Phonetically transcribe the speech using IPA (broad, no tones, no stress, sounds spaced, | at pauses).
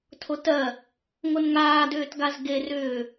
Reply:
tʰ o t ɜ | ŋ o n ŋ aː d ʏː t ɡ a z ɡ e r ʏː